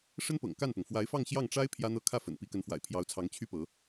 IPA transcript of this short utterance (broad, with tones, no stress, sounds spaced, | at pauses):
ʂ ə˥ n p ɤ̰˨˩ ŋ k a˥˩ n p ʊ˩ ŋ f w a˧˥ ɪ̯ f ɑ˥˧ ŋ ɕ j ɑ˥˩ ŋ ʈ͡ʂ a˥ ɪ̯ pʰ j ä˥ n̪ ɤ˥ kʰ ä˥˩ f ə̰˨˩ n p i˧˥ k ə˧˥ n f w a̰˨˩ ɪ̯ pʰ j ɑ˧˥ ʊ̯ t͡sʰ ɑ˧˥ ŋ t͡ɕʰ y˥ p ɤ˧˥